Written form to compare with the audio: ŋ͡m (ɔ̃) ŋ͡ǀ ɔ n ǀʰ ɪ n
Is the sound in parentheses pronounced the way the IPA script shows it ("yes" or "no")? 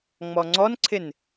no